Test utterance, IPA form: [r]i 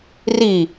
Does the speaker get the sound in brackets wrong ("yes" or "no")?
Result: no